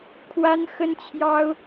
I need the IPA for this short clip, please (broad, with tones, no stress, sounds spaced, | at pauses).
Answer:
kʰ w a˥ n x ə˥ n t͡ɕʰ j ɑ˥ ʊ̯